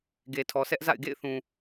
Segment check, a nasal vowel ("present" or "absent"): present